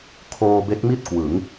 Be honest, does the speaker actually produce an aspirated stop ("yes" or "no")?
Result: yes